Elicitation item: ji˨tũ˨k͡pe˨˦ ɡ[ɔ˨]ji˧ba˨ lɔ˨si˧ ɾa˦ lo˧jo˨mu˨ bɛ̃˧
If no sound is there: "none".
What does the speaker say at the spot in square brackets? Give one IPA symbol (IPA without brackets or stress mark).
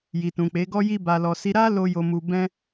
ɔ˧